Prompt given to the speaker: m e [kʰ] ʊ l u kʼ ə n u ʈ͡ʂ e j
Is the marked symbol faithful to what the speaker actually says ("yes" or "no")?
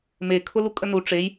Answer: yes